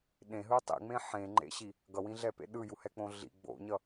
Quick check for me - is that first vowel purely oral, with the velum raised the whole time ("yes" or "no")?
no